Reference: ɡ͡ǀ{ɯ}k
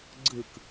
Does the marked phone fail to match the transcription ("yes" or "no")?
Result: no